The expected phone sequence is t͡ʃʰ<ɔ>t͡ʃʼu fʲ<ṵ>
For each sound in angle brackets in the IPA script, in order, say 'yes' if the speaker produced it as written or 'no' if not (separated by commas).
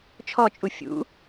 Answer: yes, yes